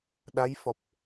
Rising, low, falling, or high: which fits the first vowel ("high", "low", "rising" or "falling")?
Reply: rising